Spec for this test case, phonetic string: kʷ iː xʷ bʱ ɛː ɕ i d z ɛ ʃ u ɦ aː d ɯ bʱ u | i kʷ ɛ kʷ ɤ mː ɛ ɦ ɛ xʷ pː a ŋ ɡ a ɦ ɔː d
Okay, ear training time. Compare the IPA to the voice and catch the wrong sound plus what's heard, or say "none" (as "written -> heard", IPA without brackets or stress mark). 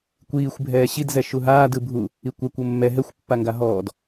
none